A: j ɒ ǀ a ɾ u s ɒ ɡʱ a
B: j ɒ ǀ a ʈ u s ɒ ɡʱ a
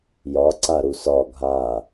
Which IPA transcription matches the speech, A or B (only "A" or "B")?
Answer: A